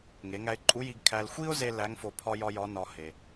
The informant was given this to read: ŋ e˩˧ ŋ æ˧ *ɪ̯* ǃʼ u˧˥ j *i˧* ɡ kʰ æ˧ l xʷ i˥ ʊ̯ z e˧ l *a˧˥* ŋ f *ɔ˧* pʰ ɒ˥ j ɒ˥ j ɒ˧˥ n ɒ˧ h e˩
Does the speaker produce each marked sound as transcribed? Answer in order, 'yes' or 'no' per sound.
yes, yes, no, no

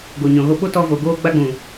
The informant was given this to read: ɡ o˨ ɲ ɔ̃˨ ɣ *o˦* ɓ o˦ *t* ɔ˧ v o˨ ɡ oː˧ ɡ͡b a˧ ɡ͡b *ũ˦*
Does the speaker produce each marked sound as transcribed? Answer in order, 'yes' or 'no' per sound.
no, yes, no

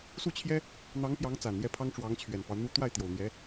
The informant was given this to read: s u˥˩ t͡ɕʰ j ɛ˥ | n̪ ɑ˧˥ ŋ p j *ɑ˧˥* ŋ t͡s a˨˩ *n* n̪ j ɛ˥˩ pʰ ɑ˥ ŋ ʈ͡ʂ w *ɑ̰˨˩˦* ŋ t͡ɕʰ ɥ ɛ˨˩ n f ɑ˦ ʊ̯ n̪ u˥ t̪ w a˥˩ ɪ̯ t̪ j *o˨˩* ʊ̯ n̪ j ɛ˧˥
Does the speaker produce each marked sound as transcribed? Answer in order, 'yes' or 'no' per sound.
yes, yes, no, yes

